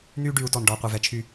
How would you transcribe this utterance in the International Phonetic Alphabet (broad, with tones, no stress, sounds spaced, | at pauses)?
n̪ yː˦ ɖ yː˨˦ u̯ t ɔ˨ n ɖ ɔː˨ qʷ œ˨ v ɛ˨ t͡ʃʰ yː˦˨